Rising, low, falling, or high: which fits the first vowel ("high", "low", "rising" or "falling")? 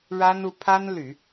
high